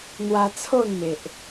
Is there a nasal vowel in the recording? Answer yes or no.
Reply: no